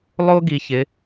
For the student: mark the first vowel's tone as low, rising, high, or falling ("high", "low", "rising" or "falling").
high